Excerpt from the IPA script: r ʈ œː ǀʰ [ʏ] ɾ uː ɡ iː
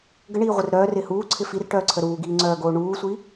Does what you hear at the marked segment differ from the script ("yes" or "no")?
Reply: yes